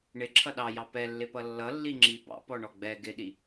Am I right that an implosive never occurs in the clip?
no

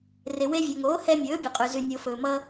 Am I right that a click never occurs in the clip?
yes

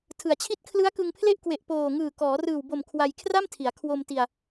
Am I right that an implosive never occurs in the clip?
yes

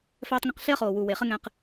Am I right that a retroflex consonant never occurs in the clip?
yes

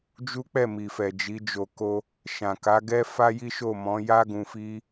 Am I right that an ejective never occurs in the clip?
yes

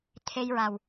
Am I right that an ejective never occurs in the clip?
yes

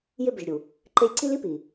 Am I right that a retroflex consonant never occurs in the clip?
yes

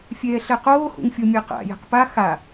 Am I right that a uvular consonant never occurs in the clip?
no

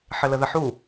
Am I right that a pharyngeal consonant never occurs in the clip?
no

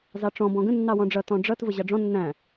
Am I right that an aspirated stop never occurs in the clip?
yes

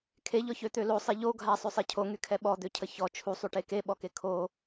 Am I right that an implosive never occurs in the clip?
no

